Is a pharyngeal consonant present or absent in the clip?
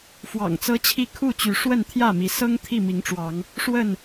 absent